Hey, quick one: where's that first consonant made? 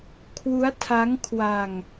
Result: velum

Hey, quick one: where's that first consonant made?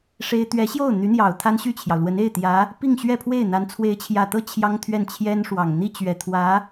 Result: retroflex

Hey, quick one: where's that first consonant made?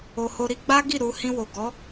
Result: throat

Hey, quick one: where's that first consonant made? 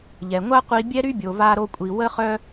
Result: palate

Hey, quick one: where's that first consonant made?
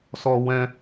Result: tongue tip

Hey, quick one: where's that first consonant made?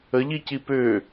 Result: palate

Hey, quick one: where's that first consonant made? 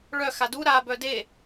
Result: retroflex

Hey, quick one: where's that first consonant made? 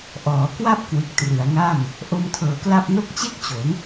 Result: throat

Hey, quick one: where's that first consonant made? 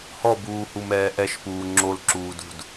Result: throat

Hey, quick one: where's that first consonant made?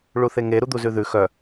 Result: retroflex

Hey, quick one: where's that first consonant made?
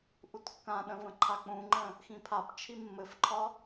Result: throat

